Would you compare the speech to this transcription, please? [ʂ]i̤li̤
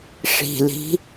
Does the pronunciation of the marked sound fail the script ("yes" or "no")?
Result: no